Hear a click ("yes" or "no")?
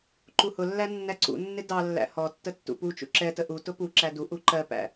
yes